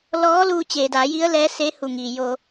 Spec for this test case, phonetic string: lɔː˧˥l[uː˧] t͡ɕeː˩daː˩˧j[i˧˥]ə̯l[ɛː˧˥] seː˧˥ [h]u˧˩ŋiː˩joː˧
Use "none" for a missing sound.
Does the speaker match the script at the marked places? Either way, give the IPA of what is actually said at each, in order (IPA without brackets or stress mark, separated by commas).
uː˧, i˧˥, ɛː˧˥, h